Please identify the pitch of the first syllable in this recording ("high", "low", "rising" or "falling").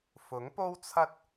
rising